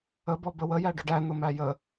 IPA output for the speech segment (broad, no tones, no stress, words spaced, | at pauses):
əbɔ bəwəjæ ɖʊɖænʊmæ jə